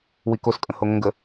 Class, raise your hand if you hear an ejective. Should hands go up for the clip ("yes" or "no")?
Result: yes